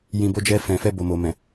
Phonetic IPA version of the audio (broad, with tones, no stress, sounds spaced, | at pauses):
j ĩ˨ b o˨˦ d͡ʒ ɛ˧ f ɛ̃˨ f ɛ˧ b o˨ m o˨ m ɛ̃˨